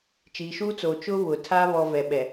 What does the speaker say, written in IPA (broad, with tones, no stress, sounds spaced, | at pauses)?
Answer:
t͡ʃ iː˨ ʃ uː˦ t͡s oː˨ t͡ʃ ʊ˦ β ʊ˨ tʰ a˦ β ɔ˦ v ɛ˨ ɓ ɛ˨